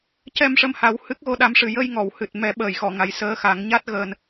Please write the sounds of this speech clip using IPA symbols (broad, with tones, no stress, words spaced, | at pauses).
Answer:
cɛ˧mʂə˧mha˨˩˦w hɨ˦˥k̚ɣo˧ɗa˧˥mʂɨ˨˩ jə˧jŋɔ˨˩˨w hɨ˨˩t̚ mɛ˨˩˦ɓəː˨˩˨jxɔ˨˩˨ ŋa˨˩j səː˧˥xa˨˩˦ŋɲa˦˥t̚ ɣəː˧n